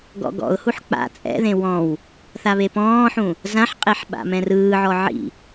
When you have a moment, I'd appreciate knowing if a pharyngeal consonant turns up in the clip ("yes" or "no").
yes